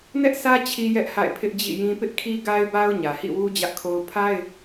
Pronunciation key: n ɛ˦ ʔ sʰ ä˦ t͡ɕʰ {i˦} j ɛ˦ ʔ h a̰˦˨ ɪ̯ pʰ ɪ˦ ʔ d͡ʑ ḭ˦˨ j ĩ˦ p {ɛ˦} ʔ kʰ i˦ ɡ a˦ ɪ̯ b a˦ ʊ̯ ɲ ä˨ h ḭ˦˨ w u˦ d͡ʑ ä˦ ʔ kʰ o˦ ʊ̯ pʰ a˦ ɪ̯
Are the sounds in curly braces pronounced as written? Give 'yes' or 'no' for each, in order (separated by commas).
yes, no